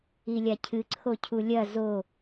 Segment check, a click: present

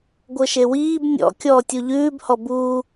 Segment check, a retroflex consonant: absent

